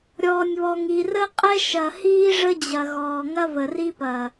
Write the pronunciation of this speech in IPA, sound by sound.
ɾʲɔː˨nʲβɔ˨ŋ i˨rə˦ qʼɛ˦ʃɐ˨hiː˦ ʐə˦d͡ʑɐ˨ɣɔː˨ ŋɐ˦və˨ri˦pɐː˨

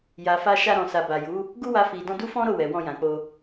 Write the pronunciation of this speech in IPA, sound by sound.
ja˨fa˧ʃa˧ɾɔ̃˨ sa˨ba˨ju˨˦ | ɡu˦wa˧fi˨dɔ̃˧ du˦fɔ̃˦ɾo˦˨ wɛ˨wɔ̃˧jã˨k͡po˧

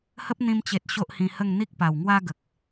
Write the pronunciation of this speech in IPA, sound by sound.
hə˦p̚ n̪ĩ˧mt͡ɕe˨t̚ ɕo˦ʔhĩ˧hə˥˧ŋ n̪i˦k̚pa˨˩wŋwa˦ɡə˨k̚

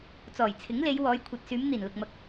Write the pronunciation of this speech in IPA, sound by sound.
t͡sɔː˨˩jt͡sʰɪ˨˥ŋle˨˧jwɔː˨˧j kʷʰɐ˨t̚syː˨˧m n̪iː˨˩nlʊ˨k̚mɐ˨˥k̚

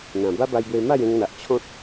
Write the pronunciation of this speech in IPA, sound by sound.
n̪ã˨˩ ba˦ba˧jbwe˧ ma˥˧jẽ˧ŋn̪a˨ʔ t͡ɕʰɔ̃˦t̚

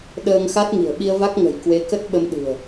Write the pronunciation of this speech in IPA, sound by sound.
ɗəː˧ŋxa˦˥t̚ŋi̤˨˩ə̯ ɓi˧ə̯va˦˥k̚ ŋə̤˨˩jkwe˧ kə˦˥t̚ ɓə˧mɗɨ̤˨˩ə̯

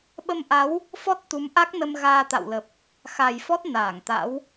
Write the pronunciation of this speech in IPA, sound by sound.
ɓə˧mʔa˨˦w | fɔ˦˥t̚t̪u˨˦mʔa˦˥k̚nə˧m ɣaː˧t̪a̰˧˨wlə˨˩p̚ | xa˨˩jfɔ˦˥t̚ naː˧˩ŋt̪a̰˧˥w

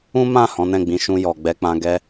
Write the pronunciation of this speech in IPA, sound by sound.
ũ˦mã˦˨ hɔ̃˨˦nɛ̃˦˨ɡ͡bĩ˨˦ ʃũ˧jɔ˨ɡ͡bɛ˧k͡pã˧ ɡɛ˧

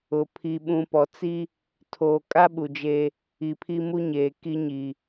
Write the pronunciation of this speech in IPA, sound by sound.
ʊ˨ pʰi˨ɓũ˨pɔ˨t͡si˦ | tʰoː˨kʼa˦ ɓu˨d͡ʒeː˦ | i˨pʰi˦mu˦ ɲeː˨ki˦ɲi˨

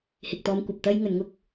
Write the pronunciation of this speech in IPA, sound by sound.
hɪ˨k̚t̪ɔː˧mkʷɐ˨p̚ t̪ɐ˥jŋɵ˨˧nŋʊ˥k̚

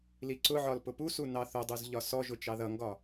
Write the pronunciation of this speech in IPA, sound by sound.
liǀʊʕɒl pʊpusu nɑθʊdˤuz ʎɒsɔʒʊ t͡ʃɑðʌŋɡɒ

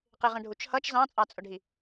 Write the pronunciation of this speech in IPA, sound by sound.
qɪʁə̃ɖʱut͡ʃhʌt͡ʃ zɑ̃t͡sʼɑt͡sʼʊɖʱi

